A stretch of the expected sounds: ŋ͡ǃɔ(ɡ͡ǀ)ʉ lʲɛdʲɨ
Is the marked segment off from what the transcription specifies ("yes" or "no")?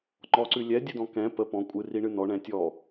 yes